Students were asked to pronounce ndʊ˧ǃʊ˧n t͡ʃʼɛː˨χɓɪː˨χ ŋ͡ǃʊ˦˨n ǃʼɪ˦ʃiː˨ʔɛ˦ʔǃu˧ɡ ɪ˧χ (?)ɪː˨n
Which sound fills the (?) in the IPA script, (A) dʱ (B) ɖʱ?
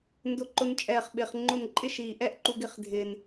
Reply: A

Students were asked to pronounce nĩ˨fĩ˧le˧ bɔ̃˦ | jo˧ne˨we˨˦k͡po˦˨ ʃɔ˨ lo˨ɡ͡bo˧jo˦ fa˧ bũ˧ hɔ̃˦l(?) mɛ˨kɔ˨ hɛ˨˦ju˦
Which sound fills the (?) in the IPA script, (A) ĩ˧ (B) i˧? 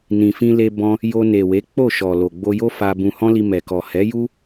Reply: B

